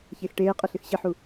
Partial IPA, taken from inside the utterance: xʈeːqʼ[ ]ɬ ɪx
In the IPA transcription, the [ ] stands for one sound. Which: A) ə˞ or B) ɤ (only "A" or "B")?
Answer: B